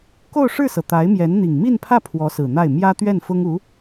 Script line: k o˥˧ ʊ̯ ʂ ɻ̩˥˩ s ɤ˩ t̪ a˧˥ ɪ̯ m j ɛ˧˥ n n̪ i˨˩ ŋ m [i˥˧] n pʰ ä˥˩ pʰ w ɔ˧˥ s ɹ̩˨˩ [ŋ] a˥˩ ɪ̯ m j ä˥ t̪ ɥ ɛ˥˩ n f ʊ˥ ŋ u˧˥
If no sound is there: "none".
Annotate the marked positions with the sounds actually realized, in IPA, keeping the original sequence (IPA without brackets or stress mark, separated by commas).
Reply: i˥˧, n̪